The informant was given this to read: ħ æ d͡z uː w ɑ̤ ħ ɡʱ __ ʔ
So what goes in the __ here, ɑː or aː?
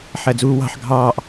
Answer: ɑː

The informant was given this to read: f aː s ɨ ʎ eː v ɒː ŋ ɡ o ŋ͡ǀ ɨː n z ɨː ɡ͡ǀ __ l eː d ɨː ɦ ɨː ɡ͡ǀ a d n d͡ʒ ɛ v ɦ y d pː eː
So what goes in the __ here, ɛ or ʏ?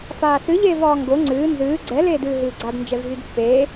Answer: ɛ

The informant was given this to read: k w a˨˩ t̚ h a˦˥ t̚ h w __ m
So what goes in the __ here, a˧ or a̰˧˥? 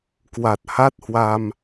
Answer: a˧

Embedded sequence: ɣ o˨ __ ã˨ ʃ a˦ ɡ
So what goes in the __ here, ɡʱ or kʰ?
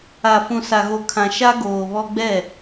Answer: kʰ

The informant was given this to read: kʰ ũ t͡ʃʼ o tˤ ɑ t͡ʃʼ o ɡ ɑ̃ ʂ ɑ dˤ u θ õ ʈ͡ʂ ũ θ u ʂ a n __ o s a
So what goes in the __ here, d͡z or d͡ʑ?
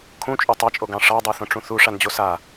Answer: d͡ʑ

